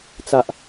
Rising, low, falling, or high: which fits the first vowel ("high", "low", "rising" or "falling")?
low